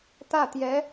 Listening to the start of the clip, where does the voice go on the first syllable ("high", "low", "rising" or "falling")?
falling